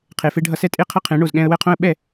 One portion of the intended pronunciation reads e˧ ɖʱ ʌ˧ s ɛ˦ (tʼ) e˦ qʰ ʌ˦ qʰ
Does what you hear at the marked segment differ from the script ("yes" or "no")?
no